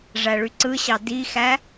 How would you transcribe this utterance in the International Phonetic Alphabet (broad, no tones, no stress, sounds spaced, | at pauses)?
ʐ æ ɭ y ǀ ɯ ɕ ɑ d i x æ